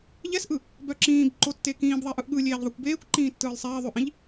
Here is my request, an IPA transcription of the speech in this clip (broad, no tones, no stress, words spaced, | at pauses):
ʎɛsʔɯ | bœǁĩːb ǃotːekĩːb ðˤeʔɯʔɠɯlʲeːʎ ðˤɯkʷbeːkʷǃĩː tːɯːlˠsˤeːðˤʉʔĩʎ